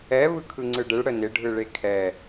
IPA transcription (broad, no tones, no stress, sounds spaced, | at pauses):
ɛ β ɯ kʰ ɯ ŋ͡ǀ ɯ ɖ ɪ ɭ ɽ ə n ɪ ɖʱ ɯ ɭ e kʰ ɛ